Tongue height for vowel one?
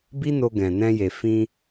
high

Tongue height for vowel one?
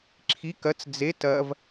high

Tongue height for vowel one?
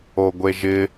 mid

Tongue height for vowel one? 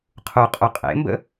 high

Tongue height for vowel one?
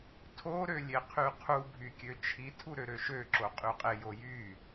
mid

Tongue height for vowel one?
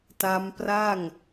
low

